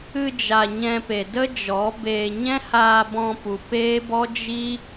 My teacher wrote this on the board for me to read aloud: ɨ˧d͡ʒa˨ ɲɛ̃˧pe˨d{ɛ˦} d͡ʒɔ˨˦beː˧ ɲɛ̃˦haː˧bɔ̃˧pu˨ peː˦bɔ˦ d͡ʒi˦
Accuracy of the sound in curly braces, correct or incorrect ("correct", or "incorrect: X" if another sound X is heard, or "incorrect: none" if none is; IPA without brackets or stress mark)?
incorrect: ə˦